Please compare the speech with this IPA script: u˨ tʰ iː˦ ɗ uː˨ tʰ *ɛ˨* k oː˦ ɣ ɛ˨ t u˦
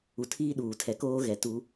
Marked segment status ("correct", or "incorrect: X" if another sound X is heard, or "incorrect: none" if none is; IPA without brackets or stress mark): correct